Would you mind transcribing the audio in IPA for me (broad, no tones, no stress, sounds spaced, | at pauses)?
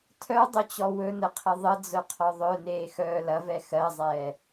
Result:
tʰ œ dˤ ɵ t͡ɕ ɔ w ɵ n ə qʰ ə ðˤ ə d͡z œ qʰ ɔ ðˤ œ n eː x œː l ɐ v ɛ x ɜ zˤ ɛː